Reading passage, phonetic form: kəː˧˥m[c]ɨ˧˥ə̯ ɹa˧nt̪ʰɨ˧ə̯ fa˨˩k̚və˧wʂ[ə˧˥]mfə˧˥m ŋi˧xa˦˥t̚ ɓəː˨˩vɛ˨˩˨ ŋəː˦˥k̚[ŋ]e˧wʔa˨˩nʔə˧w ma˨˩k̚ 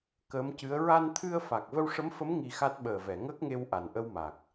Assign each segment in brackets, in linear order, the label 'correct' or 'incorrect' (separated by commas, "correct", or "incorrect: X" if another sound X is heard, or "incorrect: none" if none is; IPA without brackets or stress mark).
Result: correct, correct, correct